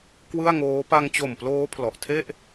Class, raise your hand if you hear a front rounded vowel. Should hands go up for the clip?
no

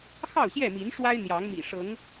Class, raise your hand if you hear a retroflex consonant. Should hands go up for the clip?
yes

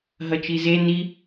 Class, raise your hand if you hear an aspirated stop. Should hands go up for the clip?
no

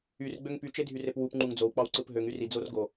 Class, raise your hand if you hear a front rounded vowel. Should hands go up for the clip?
yes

